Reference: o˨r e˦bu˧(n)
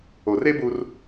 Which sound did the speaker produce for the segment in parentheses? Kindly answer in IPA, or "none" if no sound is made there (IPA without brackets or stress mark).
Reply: r